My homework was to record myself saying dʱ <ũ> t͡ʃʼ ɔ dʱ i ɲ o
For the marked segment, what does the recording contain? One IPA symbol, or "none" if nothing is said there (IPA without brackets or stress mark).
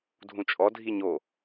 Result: ũ